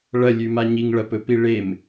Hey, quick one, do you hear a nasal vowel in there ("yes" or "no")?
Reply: no